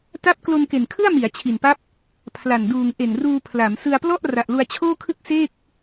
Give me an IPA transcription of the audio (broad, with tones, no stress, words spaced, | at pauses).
ta˦˥p̚ klo˧nke˨˩nkʰɯ˥˩a̯ mi˩˦a̯ t͡ɕʰi˨˩npa˦˥p̚ | pʰla˨˩n duː˨˩ŋʔe˨˩nruː˧pʰla˩˦m sɯ˧a̯plɔ˥˩ʔ ra˨˩ʔlu˧a̯t͡ɕʰoː˥˩kʰɯ˥˩k̚ seː˥˩k̚